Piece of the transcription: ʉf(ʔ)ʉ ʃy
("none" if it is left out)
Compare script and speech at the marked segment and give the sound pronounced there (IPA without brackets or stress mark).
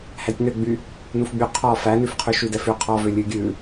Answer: qʰ